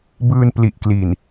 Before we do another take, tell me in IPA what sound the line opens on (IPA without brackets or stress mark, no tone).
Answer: b